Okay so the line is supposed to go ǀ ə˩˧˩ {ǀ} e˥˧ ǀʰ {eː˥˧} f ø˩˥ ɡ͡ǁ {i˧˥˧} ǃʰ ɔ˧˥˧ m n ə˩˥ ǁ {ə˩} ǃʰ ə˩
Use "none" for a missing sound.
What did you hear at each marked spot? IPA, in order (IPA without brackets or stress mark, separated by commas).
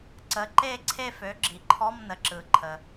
ǃ, e˥˧, i˩, ɯ˩